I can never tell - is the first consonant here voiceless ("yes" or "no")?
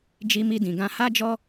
no